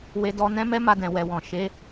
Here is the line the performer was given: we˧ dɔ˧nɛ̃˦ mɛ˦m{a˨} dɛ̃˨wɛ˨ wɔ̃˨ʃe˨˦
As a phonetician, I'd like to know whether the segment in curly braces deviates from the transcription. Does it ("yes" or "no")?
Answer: yes